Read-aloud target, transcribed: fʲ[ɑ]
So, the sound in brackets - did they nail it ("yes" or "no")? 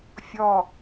no